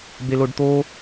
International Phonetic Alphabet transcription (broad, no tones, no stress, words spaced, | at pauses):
beloɖt̪o